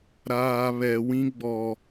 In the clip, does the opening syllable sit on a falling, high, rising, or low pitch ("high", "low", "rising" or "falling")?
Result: low